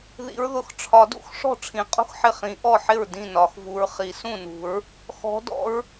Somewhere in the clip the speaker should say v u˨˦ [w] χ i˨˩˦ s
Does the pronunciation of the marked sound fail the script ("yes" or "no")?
yes